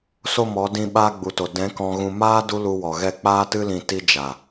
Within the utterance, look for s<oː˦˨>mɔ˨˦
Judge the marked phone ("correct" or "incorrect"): incorrect